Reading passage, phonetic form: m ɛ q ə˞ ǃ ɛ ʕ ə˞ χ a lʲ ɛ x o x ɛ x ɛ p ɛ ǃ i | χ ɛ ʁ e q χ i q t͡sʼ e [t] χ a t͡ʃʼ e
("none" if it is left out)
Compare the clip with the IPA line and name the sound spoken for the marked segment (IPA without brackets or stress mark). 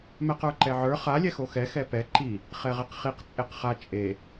q